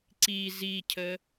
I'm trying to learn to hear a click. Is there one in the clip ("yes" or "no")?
yes